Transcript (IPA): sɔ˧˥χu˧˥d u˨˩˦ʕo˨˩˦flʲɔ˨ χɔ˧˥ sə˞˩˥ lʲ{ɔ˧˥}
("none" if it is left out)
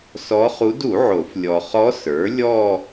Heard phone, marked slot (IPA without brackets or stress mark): ɔ˥˧